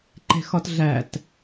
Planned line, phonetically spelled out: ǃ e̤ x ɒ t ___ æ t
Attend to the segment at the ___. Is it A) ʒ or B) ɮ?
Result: B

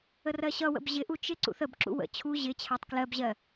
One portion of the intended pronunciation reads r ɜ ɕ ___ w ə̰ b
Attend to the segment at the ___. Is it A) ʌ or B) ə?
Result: A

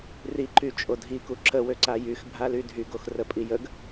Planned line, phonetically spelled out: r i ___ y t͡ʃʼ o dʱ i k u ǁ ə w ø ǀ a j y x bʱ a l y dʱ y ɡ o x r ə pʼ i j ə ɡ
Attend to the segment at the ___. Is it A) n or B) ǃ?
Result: B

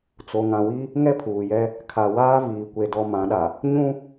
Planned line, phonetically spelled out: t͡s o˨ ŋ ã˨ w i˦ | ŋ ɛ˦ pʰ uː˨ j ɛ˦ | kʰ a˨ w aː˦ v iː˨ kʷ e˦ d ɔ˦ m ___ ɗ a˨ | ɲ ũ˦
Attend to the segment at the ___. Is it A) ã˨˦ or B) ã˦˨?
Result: A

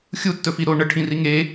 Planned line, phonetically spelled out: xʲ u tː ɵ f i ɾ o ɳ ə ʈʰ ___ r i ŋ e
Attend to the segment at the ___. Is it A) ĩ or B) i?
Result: A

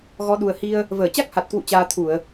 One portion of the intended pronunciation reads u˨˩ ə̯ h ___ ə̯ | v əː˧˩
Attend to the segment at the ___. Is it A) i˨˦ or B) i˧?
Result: B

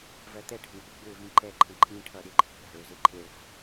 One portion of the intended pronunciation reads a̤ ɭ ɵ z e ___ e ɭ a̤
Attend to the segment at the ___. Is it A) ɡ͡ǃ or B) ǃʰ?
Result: B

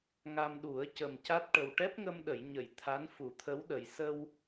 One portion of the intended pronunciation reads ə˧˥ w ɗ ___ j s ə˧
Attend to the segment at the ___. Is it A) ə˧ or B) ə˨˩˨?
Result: B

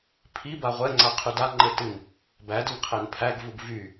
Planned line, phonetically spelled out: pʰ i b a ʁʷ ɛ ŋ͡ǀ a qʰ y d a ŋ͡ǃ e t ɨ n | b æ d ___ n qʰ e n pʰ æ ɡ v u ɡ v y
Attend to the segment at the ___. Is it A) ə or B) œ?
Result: A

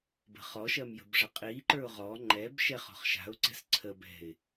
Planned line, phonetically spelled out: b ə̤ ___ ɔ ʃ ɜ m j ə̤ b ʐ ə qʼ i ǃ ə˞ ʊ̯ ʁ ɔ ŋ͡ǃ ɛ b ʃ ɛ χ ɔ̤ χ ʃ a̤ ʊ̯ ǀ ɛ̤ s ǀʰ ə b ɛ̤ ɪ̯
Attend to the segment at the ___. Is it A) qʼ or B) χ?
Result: B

